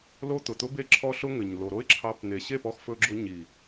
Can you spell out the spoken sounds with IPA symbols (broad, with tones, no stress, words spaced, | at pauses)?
lo˦t̪ʊ˨t̪ʊ˦be˦ ǁʰɔ˦ɬʊ˦ŋɘ˨ɲ lo˨ɾo˦ɪ̯ǁʰɑ˧p n̪e˨ɕe˦˨pɔ˧x fɵ˧ɡ͡ǁʊ˧ɲi˨